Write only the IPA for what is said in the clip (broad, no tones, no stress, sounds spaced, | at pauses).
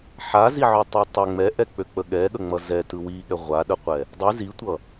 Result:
ħ a z i ʕ ø tˤ ø tˤ ɛ ŋ͡m ɛ ʔ ɛ k͡p ø k͡p ə ɠ ɛ ɠ ə ŋ͡m ʌ z ɛ t ɯ w i ɠ ɛ ʁʷ a ɗ ə qʷ ɛ | dˤ ɯ z i tʷ ʌ